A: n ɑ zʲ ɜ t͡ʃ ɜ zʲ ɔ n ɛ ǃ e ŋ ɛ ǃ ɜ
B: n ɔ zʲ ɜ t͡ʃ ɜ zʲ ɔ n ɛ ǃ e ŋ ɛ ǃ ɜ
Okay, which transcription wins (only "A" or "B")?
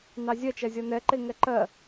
A